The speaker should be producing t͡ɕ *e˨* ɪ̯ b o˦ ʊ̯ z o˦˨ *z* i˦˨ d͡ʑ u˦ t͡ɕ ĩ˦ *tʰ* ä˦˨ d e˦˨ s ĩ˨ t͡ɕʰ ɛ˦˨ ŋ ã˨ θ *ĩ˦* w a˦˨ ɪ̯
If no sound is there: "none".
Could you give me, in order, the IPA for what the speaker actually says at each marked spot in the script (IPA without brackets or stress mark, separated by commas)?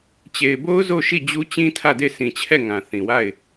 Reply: e˨, ʃ, tʰ, ĩ˨